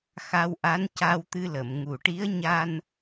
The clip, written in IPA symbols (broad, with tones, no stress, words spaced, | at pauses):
xa˧wʔa˧˥n ca˧wt̪ɨ˧lə˨˩˨m ŋu˨˩ʈi˧˥ə̯ ɲa˧n